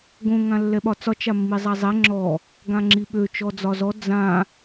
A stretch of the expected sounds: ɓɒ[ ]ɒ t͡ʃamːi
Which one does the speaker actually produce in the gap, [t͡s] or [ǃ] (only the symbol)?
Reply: t͡s